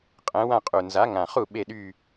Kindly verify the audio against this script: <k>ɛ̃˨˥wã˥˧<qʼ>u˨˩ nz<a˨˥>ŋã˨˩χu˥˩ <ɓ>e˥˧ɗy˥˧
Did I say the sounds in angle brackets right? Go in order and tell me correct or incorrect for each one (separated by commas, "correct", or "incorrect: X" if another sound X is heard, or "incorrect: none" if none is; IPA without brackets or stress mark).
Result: incorrect: qʼ, correct, correct, correct